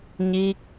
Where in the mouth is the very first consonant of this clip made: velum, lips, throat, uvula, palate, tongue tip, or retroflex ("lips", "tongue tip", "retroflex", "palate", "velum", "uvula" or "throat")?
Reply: palate